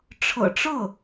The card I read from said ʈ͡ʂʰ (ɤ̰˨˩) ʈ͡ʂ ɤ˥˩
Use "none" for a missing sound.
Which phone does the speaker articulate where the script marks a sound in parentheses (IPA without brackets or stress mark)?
ɤ̰˨˩